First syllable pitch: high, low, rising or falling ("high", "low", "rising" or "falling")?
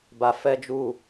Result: low